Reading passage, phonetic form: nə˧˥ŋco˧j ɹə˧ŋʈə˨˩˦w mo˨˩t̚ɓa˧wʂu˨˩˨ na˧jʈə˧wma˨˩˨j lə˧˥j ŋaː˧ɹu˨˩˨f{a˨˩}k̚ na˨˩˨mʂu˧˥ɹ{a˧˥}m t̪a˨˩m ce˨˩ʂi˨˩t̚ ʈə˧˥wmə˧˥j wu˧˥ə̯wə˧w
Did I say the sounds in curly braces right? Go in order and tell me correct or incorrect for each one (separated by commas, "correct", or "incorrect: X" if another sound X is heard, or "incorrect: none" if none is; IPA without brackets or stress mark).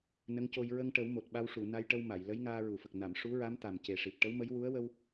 incorrect: ə˨˩, correct